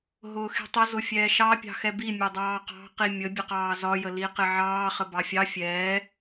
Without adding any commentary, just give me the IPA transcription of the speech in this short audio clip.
ɦ ʊː x i̤ tˤ ə z ʊ fʲ ɛː ʃ ɑ pʲ ɑ̤ x ɛ b i mʲ ʊ dˤ ɑː q ɑ̤ q i mʲ ə bʲ ə q ɑː z ɒ j ə l i q ɪ ʕ ɑː χ ə b ɑ fʲ ɑ fʲ ɛː

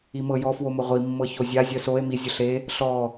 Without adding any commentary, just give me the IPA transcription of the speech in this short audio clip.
i m ɤ j ɔ f w o m ʊ ʁʷ i mː ɤ ç o zʲ a zʲ œ s o e̯ m i zʲ ʊ ɬ e | ɬ ɔ

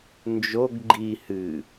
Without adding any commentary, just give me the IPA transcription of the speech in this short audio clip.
n d͡ʒ o ɡ ɡ͡ǃ i h ɨ

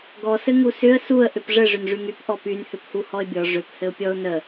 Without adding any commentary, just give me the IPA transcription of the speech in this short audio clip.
ɡ ɔ s ɘ ŋ u s ʏ ə̯ s u ə̯ ʔ ʏ p ʐ ɘ ʐ ʏ n ʐ y ŋ y p ʔ ɔ p y n h ʏ p h u h ɔ ɪ̯ bʲ ɔ ʐ ʏ p h ɘ ʊ̯ pʲ ɔ ʊ̯ n ə

